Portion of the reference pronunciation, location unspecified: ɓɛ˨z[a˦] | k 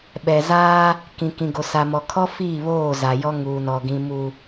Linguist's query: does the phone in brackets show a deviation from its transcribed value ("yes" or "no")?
no